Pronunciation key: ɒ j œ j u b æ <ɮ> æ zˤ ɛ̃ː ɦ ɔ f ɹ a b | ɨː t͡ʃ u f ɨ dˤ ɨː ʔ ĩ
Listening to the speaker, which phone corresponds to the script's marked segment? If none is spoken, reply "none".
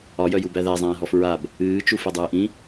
ð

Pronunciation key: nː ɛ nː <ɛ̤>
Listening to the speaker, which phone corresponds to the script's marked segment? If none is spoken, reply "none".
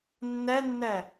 ɛ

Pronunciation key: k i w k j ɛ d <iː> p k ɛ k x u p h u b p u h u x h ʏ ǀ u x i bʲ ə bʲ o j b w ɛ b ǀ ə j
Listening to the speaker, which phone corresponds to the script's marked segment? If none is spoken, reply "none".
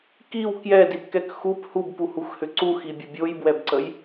i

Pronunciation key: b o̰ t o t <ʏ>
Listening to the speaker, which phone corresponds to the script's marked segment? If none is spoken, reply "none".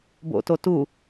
u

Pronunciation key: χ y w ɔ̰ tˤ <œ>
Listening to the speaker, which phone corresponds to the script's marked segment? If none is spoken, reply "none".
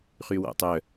œ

